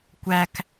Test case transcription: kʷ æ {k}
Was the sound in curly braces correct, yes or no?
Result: yes